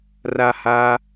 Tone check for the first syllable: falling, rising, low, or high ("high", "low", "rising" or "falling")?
falling